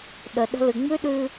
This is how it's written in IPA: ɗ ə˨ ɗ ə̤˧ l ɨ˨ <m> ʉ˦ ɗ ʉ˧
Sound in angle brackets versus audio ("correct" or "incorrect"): incorrect